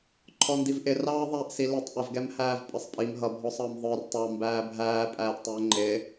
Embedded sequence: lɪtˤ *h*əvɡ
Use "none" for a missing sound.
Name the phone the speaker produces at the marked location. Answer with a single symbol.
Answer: ʔ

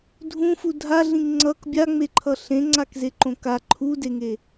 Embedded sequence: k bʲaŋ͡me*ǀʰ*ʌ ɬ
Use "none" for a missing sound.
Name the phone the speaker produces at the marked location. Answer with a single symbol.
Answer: ǃʰ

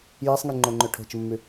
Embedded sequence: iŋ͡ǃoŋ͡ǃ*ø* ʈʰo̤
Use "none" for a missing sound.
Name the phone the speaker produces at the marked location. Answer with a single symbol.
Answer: ø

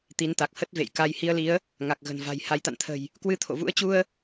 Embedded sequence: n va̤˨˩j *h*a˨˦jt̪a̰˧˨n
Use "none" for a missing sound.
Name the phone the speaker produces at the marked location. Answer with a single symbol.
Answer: h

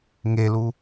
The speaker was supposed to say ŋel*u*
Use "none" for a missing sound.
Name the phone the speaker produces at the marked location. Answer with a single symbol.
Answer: u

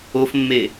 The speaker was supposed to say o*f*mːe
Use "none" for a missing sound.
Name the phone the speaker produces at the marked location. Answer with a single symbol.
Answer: f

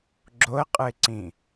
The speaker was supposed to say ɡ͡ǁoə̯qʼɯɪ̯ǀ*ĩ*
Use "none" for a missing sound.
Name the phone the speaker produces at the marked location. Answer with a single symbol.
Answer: ĩ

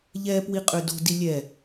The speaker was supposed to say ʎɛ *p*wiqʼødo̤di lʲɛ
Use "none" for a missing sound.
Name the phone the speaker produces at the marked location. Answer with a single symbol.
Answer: p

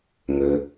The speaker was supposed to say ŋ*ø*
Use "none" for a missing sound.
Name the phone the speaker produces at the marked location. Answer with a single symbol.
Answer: ø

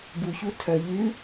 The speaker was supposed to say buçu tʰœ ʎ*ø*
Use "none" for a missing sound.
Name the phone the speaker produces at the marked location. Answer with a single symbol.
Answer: ʉ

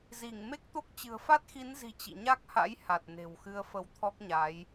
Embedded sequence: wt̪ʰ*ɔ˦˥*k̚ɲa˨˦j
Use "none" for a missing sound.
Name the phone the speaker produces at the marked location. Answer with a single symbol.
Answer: ɔ˦˥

